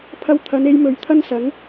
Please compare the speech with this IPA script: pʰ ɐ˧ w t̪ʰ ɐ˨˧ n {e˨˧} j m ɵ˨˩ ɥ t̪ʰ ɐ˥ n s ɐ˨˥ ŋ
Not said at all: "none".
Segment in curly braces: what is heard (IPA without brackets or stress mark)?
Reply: e˧